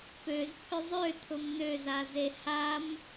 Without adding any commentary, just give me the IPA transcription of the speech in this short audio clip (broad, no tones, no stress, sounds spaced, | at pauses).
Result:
p ø z pʰ ʏ zˤ ø t̪ʰ ʊ m n̪ ø z a z e h a m